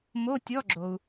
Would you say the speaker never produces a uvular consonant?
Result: yes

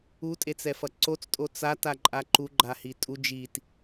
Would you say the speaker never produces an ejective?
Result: no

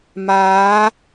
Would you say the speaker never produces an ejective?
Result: yes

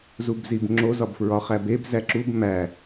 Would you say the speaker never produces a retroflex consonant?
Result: yes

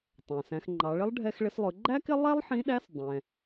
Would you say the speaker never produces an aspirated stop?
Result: yes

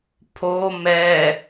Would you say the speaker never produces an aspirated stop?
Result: no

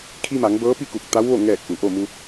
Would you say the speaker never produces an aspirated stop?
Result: no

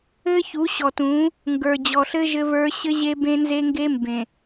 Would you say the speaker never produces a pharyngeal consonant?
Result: yes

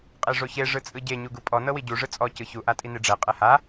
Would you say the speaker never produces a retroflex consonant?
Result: no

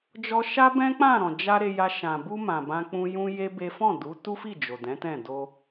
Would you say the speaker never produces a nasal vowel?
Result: no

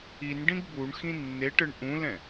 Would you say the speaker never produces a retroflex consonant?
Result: no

